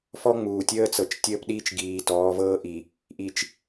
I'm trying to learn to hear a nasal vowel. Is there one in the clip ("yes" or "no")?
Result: no